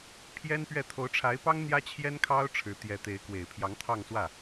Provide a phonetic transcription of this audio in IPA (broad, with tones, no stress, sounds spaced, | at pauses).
pʰ j ɛ˥ n p ɥ ɛ˥˩ t̪ʰ o˧˥ ʊ̯ ʈ͡ʂʰ a˧˥ ɪ̯ p ɑ˥ ŋ n̪ j ä˥ t͡ɕʰ j ɛ˥ n kʰ ɑ˥ ʊ̯ ʈ͡ʂʰ ɻ̩˧˥ t̪ j ɛ˧˥ t̪ e˧˥ ɪ̯ k w e˨˩ ɪ̯ pʰ j ɑ˧˥ ŋ t̪ʰ ɑ˥˧ ŋ s w ä˥˩